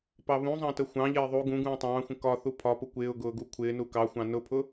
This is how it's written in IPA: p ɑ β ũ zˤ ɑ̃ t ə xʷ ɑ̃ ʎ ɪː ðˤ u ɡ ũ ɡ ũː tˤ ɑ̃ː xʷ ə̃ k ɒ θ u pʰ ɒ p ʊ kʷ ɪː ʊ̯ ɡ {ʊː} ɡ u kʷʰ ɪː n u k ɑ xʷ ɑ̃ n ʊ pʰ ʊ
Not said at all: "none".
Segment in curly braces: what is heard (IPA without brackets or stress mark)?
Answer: ʊː